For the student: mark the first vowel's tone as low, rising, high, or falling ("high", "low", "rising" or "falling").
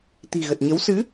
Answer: low